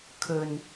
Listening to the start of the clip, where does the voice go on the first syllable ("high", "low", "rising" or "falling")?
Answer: low